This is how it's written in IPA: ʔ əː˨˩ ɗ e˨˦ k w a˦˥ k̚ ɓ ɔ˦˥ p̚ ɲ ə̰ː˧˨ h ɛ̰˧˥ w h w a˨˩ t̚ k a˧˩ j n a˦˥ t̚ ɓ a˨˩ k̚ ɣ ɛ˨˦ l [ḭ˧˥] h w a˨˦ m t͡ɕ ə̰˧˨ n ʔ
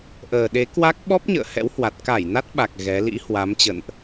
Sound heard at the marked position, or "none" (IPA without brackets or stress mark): ḭ˧˥